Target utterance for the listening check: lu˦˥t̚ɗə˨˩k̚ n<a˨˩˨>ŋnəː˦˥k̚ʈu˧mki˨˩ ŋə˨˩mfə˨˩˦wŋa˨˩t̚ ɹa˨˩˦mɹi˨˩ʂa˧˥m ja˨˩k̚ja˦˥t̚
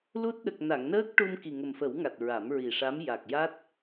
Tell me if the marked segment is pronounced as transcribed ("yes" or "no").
yes